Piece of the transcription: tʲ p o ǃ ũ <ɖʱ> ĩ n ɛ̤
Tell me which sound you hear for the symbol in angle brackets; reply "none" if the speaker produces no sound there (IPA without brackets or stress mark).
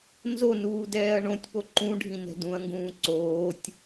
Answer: ɖʱ